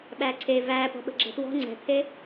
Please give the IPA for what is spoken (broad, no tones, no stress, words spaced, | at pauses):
ɓæǀʰe væːpɔ̤ɓə̤ ɡ͡ǁɛ̤twɔ̤ ŋ͡ǀɛ̤t̪ʰe